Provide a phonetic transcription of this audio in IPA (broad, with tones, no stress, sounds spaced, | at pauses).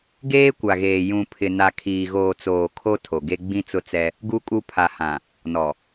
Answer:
ɡ eː˦ kʷ a˨ ɣ eː˨ j ũ˨ pʰ ɪ˨ n a˨ kʰ iː˨ ɣ oː˨ t͡s oː˨ kʰ o˦ tʰ o˨ ɡ e˦ ɡ͡b ĩ˦ t͡s ʊ˦ t͡s ɛ˦ | ɡ u˦ kʼ u˦ pʰ a˨ h ã˨ | n ɔ˨